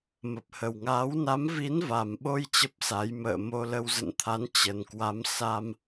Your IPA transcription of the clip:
m ə˨˩ p̚ h ə˨˩ w ŋ aː˨˦ w n a˨˦ m v i˨˦ n v a˨˩ m ɓ o˧ j t͡ɕ ə˦˥ p̚ s a˨˦ j m ə̰ː˧˨ m o˧ l ə˧ w z ə̰˧˨ n t̪ʰ a˨˦ n t͡ɕ ə˨˩ n k w a˨˦ m s a˧ m

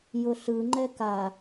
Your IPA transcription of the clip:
j ʊ ɬ ɯ ŋ͡ǃ ɛ k a

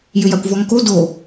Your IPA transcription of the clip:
j ʏ j a kʷ v ɔ ŋ k o d o

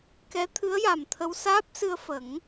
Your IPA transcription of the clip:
k ɛ˧˥ t̪ʰ ɨ˧˥ ə̯ j a˨˩ m t̪ʰ ə˧ w s aː˦˥ p̚ s ɨ˧ ə̯ f ə˨˩˦ ŋ

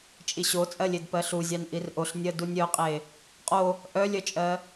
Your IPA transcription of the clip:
t͡ʃʼ i ɕ o t͡sʼ ɜ lʲ e d p ɜ ɬ u zʲ ɑ n ʔ i r ʔ o ɬ nʲ ɜ d u nʲ œ qʼ e | qʼ o | ʔ œ lʲ œ t͡ʃʼ ɜ

